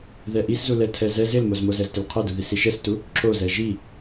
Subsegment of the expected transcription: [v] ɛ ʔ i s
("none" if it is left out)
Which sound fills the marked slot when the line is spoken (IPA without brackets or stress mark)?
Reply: ð